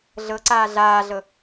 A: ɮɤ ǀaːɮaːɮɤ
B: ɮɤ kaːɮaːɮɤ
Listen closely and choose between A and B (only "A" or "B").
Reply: A